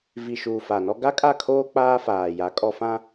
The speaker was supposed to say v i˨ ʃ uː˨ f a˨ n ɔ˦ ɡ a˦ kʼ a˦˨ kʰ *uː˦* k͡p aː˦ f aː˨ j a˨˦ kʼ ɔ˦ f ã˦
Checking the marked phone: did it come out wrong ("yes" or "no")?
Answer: yes